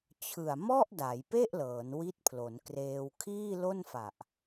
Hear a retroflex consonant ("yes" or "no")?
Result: no